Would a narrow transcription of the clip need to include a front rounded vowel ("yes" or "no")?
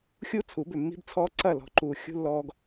yes